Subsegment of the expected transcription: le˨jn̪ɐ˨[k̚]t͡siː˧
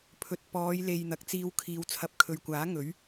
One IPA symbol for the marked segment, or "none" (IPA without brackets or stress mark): k̚